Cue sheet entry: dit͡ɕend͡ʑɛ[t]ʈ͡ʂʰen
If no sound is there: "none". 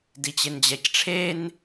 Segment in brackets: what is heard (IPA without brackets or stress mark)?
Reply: c